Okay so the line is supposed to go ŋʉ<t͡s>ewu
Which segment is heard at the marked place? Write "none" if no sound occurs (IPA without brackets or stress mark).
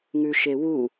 ʃ